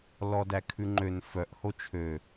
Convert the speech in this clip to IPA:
l ɔ d æ kʰ ʉ ŋ͡ǃ ø n f œ ʔ h o t͡ʃʰ ø

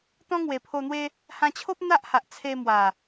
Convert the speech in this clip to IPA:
t̪ ɔ̃˦ ŋ w e˨˩ pʰ o˧ n̪ w e˦ | h ã˧ t͡ɕʰ o˦ p̚ n̪ a˦ ʔ h a˨ ʔ t͡sʰ e˧ m w a˨˩

